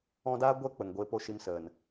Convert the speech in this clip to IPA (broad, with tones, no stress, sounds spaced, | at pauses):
ɔ̃˧ d aː˦ ɡʷ ɛ˧ k͡p ə˨ ŋ ɡʷ e˧ p o˦ ʃ i˧ m s ə˨ n